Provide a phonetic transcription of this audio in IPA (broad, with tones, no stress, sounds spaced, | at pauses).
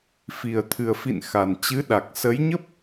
f i˨˩ ə̯ t̪ʰ ɨ˨˩ ə̯ f ḭ˧˨ n x a˨˩ n t͡ɕ ɨ˨˦ ɗ a˨˩ k̚ s ə˨˦ j ɲ ə˦˥ p̚